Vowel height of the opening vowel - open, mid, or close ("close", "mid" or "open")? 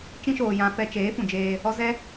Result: close